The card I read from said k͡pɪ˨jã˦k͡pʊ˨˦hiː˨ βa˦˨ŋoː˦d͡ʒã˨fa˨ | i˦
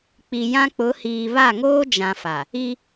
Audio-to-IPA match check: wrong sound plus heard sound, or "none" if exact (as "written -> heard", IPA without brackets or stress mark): ɪ˨ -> i˨